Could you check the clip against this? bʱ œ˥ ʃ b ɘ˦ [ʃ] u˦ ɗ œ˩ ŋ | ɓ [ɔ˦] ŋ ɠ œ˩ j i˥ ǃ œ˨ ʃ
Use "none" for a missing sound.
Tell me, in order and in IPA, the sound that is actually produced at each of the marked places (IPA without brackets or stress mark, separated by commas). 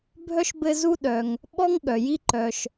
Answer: z, ɔ˦